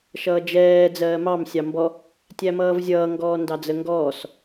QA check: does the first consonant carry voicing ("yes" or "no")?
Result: no